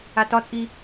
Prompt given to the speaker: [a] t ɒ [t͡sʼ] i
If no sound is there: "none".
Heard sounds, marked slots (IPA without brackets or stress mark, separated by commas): a, t͡sʼ